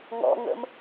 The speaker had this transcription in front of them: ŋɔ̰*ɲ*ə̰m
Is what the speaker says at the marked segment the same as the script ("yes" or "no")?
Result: no